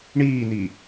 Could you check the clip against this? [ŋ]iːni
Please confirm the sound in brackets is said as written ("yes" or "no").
no